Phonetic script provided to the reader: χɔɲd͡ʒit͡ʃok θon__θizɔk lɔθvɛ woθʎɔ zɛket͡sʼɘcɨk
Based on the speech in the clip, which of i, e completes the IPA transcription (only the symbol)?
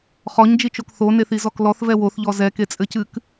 e